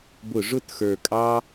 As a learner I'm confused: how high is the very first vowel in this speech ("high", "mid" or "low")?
high